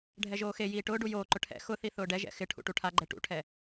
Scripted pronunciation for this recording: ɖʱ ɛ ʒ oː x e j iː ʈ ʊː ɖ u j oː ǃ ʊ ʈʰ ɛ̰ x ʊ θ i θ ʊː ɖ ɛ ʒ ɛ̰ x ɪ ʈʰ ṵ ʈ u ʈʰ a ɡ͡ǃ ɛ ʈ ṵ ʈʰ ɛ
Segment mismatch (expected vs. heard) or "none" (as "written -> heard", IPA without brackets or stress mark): none